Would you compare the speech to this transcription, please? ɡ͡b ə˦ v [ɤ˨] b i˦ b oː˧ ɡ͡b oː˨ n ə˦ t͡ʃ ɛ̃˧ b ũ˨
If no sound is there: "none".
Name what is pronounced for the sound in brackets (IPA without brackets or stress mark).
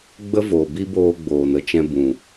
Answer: o˨